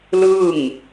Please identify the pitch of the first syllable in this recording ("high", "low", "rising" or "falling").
falling